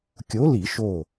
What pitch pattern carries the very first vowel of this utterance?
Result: rising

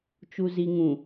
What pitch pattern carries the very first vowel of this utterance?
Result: low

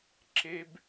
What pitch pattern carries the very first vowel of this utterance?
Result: high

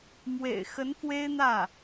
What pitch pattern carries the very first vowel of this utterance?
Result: low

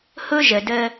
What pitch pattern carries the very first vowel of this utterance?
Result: high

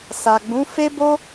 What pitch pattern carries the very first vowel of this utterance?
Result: low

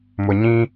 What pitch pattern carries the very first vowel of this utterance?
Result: low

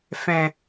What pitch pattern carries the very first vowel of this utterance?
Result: low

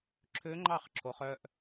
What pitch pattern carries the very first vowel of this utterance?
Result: rising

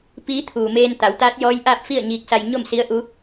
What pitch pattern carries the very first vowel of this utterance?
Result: rising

